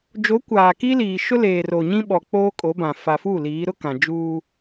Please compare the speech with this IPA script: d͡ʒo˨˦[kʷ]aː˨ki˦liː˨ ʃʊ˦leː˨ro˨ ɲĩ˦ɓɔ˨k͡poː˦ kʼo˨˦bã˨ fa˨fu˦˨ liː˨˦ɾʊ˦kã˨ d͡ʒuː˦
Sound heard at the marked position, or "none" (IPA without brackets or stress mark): kʷ